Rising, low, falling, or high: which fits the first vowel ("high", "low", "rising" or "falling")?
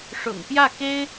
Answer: low